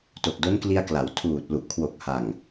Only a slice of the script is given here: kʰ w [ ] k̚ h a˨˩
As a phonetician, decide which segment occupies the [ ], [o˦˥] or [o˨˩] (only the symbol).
o˨˩